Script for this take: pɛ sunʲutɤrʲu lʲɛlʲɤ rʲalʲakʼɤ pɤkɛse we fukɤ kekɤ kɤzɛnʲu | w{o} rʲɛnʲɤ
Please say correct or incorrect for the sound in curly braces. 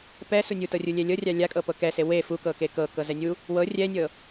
incorrect